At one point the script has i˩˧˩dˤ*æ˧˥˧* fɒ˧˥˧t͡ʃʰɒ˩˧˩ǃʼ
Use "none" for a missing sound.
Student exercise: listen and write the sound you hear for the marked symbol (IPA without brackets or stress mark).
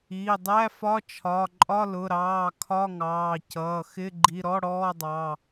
æ˧˥˧